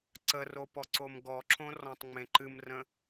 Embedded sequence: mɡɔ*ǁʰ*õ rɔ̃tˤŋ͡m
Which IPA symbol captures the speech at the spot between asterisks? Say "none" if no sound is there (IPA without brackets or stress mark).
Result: ǁʰ